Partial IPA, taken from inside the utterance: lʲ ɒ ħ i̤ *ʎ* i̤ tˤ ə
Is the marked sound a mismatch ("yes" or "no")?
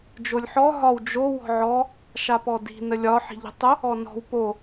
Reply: no